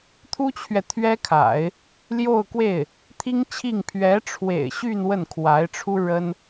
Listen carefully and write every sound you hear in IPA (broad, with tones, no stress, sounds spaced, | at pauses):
t̪ʰ u˥ t͡ɕʰ ɥ ɛ˨ t̪ʰ ɥ ɛ˥ kʰ a̰˨˩˦ ɪ̯ | l j o˥˧ ʊ̯ k w e˥˩ ɪ̯ | t̪ʰ i˥ ŋ t͡ɕʰ i˥˩ ŋ pʰ ɥ ɛ˧˥ ʈ͡ʂʰ w ḛ˨˩ ɪ̯ ɕ y˥˧ n w ə˥˩ n kʰ w a˧˥ ɪ̯ ʈ͡ʂʰ u˥ ɻ ə˥ n